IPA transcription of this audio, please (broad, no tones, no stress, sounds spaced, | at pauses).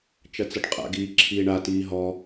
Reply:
t͡ʃ ɐ t͡s ʌ ɖ qʼ a̰ ɡ iː ǁʰ iː ɳ a t iː ɦ ɔ